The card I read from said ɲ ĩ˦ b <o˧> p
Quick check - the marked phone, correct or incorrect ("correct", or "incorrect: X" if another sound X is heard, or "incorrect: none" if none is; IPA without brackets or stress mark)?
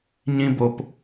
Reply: correct